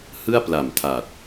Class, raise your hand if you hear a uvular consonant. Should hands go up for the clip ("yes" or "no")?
no